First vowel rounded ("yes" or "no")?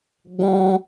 yes